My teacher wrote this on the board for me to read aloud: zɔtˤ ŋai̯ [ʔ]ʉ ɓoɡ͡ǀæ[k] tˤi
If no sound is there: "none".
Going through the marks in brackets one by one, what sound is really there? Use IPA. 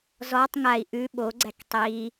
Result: ʔ, k

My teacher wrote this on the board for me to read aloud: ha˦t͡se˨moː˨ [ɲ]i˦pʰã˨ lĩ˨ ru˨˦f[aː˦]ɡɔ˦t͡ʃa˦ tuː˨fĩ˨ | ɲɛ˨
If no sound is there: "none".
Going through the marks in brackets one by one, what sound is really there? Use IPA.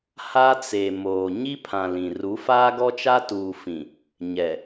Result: ɲ, aː˦

